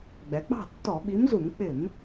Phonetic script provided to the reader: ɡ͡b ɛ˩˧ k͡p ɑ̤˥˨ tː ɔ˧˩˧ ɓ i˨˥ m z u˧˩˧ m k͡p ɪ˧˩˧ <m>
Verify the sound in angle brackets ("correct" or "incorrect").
correct